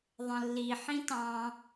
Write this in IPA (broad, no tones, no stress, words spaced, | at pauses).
ðˤə̃lːi ħĩtɑ̃